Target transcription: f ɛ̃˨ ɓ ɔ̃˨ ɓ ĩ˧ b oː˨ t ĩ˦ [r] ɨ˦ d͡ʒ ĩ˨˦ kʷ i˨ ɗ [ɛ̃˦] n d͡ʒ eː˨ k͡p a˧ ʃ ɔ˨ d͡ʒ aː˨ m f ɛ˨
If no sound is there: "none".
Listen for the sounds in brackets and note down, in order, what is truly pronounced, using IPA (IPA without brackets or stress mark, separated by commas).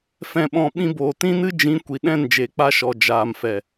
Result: n, ɛ̃˦˨